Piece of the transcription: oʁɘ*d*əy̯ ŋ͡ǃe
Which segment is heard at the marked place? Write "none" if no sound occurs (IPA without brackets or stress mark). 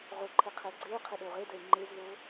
d